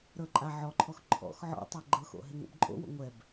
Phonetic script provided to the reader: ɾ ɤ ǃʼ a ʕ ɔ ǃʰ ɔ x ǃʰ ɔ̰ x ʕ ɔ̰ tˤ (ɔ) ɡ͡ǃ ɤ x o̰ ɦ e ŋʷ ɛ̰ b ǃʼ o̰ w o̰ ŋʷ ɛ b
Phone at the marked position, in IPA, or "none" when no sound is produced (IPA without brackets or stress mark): ɤ